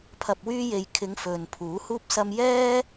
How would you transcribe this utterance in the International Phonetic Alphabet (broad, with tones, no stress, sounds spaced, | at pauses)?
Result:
pʰ ɐ˨ p̚ w yː˧ j e˨ j kʰ ɪ˨˧ ŋ f ɵ˨ n pʰ uː˨˥ h uː˥ p̚ s ɐ˥ m j ɛː˥